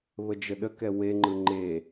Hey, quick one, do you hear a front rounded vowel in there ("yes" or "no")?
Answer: no